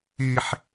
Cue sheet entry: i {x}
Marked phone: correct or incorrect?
incorrect